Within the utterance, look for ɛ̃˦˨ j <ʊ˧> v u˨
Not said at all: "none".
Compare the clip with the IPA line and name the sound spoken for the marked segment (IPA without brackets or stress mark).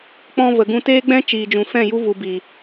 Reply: u˧